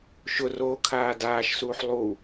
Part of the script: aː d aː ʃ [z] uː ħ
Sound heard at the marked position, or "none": s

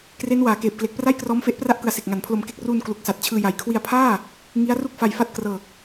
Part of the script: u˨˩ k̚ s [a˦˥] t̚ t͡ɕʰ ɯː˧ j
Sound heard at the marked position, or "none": a˨˩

